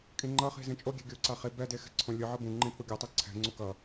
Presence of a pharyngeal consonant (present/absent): present